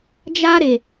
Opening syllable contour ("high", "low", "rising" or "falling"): high